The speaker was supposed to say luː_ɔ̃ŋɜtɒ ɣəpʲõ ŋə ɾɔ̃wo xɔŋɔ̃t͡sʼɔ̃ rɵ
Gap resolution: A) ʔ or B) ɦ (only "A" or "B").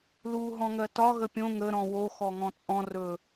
B